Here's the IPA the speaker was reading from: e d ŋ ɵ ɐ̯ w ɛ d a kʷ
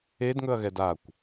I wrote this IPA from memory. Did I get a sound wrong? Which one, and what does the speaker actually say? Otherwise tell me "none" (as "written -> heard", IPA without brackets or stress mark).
w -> ɣ